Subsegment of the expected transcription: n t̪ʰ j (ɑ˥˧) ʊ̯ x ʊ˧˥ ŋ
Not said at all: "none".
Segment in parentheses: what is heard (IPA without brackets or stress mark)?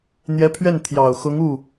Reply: ɑ˨˩